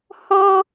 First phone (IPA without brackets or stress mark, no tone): h